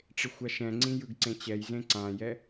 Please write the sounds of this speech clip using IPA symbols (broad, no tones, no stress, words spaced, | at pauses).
ʈ͡ʂexʷaʃɛ̃ŋ͡ǀĩ jɯɡǀẽt͡ɕɛjzẽ ǀãjɛ